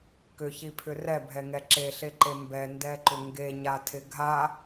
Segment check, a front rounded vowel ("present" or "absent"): present